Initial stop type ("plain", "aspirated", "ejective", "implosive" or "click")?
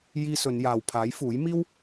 aspirated